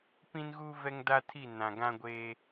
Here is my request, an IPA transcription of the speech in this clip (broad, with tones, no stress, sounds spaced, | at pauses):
p ĩ˦ n ɣ u˦ v ɛ˦ ŋ d a˦ tʰ i˦˨ n ã˨ ɡ ã˦ ɡʷ eː˦